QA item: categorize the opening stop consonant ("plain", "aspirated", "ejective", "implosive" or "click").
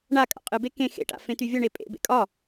ejective